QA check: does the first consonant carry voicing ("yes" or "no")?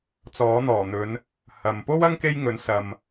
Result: no